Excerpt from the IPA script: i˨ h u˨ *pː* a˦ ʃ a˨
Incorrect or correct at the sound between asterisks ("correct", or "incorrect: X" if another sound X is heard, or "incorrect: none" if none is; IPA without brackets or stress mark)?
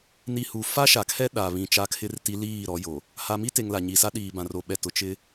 incorrect: f